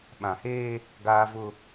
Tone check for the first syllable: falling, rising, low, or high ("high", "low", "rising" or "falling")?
low